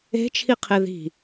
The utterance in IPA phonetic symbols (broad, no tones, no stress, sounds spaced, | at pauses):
e̤ t͡ʃʰ i qʰ e ð i̤